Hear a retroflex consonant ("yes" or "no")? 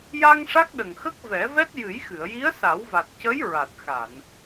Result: yes